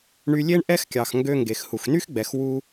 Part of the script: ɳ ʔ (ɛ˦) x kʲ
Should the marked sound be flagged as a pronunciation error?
no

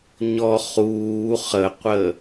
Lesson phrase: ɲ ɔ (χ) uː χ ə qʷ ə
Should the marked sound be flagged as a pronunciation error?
no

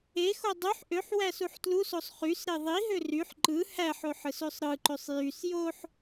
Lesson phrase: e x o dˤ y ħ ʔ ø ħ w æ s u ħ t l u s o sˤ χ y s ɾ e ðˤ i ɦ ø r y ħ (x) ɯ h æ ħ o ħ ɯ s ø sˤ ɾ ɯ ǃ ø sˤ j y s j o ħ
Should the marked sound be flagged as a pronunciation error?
yes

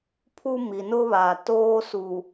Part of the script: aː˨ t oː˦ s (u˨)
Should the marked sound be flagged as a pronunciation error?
no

